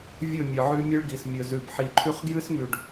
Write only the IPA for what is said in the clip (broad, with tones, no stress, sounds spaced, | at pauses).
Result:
vʲ ɵ˦˨ mʲ ɨ˨ ʕ ʉ˦ mʲ ɨ˦ ɭ ɡ i˨ s mʲ ɵ˨ z ʉ˨ b ħ i˨ ǃʰ ʉ˦ χ ɡ j ɨ˦ s m ʉ˨ ɖ